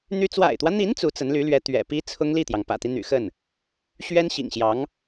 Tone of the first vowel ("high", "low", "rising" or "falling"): high